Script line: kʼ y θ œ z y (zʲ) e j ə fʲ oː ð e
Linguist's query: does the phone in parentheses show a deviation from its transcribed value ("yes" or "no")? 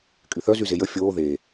yes